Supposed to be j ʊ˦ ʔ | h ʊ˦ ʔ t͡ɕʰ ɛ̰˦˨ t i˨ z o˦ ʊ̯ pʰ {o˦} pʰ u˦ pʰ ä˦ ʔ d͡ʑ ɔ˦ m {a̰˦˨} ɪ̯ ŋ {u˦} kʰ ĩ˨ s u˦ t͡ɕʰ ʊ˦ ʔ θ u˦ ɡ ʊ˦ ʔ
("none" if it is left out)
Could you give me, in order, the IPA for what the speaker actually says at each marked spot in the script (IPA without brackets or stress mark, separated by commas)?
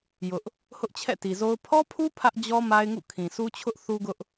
ɔ˦, a˦, ṵ˦˨